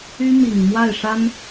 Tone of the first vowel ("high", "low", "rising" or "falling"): high